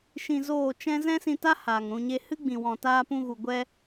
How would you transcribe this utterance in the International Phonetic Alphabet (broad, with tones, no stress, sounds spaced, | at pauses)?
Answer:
ʃ ĩ˧ z oː˦˨ t͡ʃ ɛ̃˦ z ɛ̃˦ s ĩ˧ t a˦ h aː˨ ŋ ɾ ũ˧ ɲ e˦ h ɨ˦ ɡ͡b ĩ˨ w ɔ̃˨ t aː˧ p ũ˧ ɣ u˨ ɡʷ ɛ˧